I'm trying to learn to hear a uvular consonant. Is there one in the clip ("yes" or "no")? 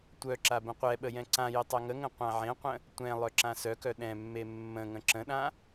yes